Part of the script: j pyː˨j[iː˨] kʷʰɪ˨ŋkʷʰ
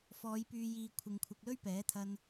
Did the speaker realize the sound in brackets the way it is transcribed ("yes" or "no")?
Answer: yes